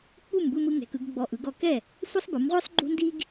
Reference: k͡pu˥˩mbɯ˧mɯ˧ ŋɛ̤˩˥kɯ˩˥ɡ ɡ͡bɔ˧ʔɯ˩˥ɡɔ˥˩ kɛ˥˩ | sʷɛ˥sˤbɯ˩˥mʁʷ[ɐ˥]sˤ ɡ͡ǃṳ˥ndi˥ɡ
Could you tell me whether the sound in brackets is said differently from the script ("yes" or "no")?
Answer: yes